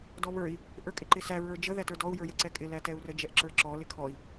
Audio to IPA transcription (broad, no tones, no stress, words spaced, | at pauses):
dɔβə˞i̯ | ʔə˞kʼɪǃɪsæ ɹə˞d͡ʒə ðætə˞dɔu̯ jə˞jəǀɛkʼɪ lætɛu̯rə d͡ʒɛʔǁə˞ǁɔ lɪkʰɔi̯